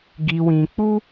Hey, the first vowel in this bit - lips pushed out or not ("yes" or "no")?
no